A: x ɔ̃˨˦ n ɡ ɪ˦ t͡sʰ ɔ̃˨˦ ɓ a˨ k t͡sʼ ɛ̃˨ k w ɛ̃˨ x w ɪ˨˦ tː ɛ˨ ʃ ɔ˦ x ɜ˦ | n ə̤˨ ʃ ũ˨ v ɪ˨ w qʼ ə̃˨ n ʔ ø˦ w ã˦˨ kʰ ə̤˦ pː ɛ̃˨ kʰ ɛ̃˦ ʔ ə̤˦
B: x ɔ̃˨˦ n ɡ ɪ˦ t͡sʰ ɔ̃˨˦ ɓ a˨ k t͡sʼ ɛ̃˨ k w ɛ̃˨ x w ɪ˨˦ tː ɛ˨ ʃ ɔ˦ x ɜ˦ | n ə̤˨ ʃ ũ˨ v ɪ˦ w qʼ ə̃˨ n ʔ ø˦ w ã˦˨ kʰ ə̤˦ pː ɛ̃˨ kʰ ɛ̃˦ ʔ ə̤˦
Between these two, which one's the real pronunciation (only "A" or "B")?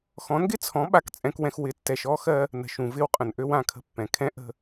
B